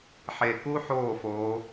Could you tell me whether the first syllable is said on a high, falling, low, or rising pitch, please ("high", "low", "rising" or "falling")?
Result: low